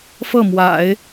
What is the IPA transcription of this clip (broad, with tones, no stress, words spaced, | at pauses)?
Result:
fɤ˥˩mwa̰˨˩˦ɪ̯